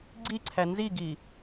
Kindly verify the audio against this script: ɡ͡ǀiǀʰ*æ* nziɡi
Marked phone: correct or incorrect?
correct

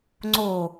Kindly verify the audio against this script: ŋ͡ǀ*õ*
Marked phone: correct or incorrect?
incorrect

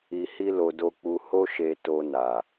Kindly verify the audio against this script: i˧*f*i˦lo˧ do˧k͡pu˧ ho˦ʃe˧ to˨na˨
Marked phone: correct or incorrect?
incorrect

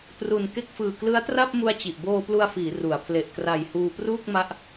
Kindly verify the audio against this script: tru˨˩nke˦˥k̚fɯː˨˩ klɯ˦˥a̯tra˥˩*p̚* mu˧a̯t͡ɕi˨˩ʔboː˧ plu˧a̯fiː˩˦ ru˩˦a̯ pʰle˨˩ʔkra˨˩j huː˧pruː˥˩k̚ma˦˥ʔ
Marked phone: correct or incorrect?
correct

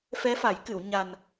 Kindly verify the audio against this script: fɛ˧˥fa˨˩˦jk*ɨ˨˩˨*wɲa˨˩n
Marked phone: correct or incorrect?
correct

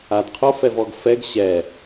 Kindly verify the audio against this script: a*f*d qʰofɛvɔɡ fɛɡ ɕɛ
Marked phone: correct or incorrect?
incorrect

